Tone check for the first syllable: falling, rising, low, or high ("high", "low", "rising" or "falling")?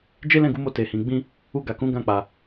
high